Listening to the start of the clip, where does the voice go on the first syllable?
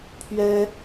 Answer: high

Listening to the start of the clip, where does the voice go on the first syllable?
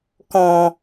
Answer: low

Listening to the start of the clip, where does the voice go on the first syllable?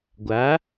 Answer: rising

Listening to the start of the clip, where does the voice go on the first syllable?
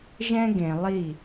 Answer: high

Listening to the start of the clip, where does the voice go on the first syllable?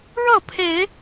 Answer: falling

